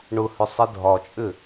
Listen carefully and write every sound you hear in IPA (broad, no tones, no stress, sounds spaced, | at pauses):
ɳ ʊ h ʏ sˤ e dʱ ɒ t͡ʃʼ ʏ